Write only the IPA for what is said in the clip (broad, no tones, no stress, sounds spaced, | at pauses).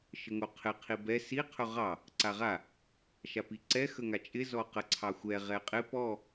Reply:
ʃ ə ŋ o qʰ ɪ qʰ i b ɛ s i qʰ ɵ ʁ ɑ | ǀ a ʁ a | ʃ a p i ǀ ɛ x ə ŋ a t͡ʃʼ ɪ z ɔ q ə ǀʰ ɑ xʷ ɛ ʁ ɛ qʼ ɪ p ɔ